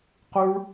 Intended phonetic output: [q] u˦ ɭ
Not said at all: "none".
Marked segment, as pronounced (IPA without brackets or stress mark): q